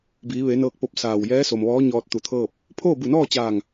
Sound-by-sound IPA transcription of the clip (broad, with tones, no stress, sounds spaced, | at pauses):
b iː˩˧ ʋ e˩˧ n ɤː˧ k̚ p o˧ p̚ s aː˧˩ w j ɛː˧˥ s o˩ m ʋ ɔː˧˥ ɲ ɔː˧ t̚ t̪ u˧˩ t̪ʰ ɤː˥˨ p̚ | pʰ oː˥˨ b u˧˩ n ɔː˥˨ t͡ɕ aː˧˩ ŋ